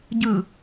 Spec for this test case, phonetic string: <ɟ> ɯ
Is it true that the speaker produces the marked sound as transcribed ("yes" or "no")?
yes